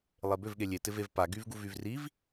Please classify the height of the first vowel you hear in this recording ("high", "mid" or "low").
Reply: mid